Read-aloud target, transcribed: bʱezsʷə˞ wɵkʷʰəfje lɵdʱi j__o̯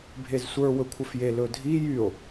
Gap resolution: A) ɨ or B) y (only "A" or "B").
B